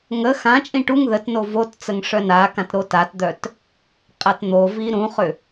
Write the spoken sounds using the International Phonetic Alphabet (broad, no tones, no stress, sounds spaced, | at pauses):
ŋ ə x ã t͡ʃʼ ĩ ʈ u ŋ ð ə t n o v o t t͡s ə ŋ ʂ œ n a k ã t ɾ o t a t d̪ œ t | qʼ a t n̪ o v i ɾ ũ χ ʏ